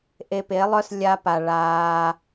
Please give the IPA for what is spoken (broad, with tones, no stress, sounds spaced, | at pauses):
ʔ e˧ p e˨˦ lˠ œ˦ s lʲ a˧ p a˨ ɭ aː˧